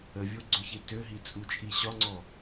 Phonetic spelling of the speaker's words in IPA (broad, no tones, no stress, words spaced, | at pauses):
əvʲoɡ͡ǀʏçe tøɦit͡sʼut͡ʃʼi ɕɒŋ͡ǀɔ